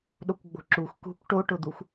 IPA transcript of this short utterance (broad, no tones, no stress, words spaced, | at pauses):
ɗokʷɡ͡bo̤ǁux kṳkʷ ʈoʈʊd̪uxʷ